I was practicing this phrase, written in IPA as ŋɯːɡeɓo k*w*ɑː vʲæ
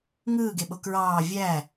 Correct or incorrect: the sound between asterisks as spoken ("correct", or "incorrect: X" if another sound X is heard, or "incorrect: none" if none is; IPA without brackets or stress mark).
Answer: incorrect: ɹ